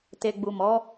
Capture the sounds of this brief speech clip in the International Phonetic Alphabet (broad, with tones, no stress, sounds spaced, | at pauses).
t e˨ ɡ͡b u˨ m ɔ˨˦